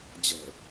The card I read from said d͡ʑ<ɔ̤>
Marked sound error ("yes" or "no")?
yes